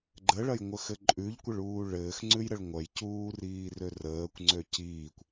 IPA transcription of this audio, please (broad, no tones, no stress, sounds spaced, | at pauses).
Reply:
ɡ͡ǃ ə ɭ ɐ j ŋʷ ə x ɘ ǃʼ ʉ ʎ kʷ ə ɭ uː ɭ ɘː x ŋ͡ǀ ʉ j ɾ ə ɭ ŋʷ ɐ j c uː r iː r ø r əː kʷ ŋ͡ǀ ø c iː kʷ